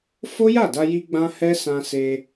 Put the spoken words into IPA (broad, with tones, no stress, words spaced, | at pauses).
fo˦ja˦˨da˧ji˧ ɡ͡bã˦hɛ˦ sã˧se˧